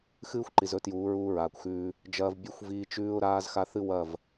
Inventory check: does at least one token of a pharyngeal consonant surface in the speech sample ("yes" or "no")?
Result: no